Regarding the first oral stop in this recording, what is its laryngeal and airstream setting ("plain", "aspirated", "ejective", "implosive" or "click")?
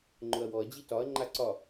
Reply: click